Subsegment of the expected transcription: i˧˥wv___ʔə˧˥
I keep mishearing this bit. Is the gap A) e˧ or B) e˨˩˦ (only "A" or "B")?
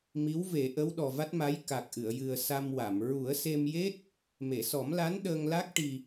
B